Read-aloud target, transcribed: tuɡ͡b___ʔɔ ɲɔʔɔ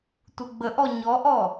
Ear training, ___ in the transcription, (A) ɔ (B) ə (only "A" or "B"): B